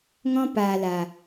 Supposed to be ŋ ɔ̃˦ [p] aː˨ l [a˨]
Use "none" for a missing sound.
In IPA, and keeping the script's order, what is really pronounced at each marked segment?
p, a˨

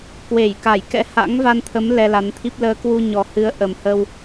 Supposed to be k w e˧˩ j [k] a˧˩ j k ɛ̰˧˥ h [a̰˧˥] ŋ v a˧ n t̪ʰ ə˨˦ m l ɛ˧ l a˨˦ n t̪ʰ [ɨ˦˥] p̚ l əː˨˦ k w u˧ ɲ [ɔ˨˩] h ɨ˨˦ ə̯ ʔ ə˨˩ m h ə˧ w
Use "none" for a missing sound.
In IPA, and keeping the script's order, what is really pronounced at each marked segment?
k, a̰˧˥, i˦˥, ɔ˨˩

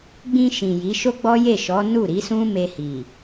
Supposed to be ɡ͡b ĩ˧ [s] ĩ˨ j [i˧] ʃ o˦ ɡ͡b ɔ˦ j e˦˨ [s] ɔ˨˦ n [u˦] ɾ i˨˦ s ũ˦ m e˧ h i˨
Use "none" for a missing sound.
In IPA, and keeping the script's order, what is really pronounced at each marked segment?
ʃ, i˨˦, ʃ, u˦˨

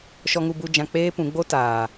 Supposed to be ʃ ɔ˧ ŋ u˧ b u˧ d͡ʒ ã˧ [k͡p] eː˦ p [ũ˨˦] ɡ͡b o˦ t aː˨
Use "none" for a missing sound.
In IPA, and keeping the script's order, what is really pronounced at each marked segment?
k͡p, ũ˨˦

